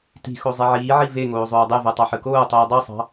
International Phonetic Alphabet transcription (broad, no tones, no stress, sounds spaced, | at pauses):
t i̤ x o zˤ e ʕ iː ʕ i v e ŋ oː zˤ oː dˤ e v ɜ tˤ ɑ ħ ɯ k oː tˤ iː dˤ o sˤ ɑ̤